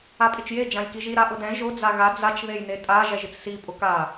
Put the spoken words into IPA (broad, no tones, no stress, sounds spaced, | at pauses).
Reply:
a pʼ ɪ t͡ʃ j e d͡ʒ ã j k i ʒ i ɾ a ʔ ʊ d ɛ̃ ʒ ʊ d͡z a ɣ a d͡z a t͡ʃ ð e j n e tʼ a ʒ ɛ ʒ ɪ t͡s s i pʼ ʊ k a